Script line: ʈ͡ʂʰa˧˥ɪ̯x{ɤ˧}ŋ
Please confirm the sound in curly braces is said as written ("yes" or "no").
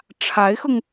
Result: yes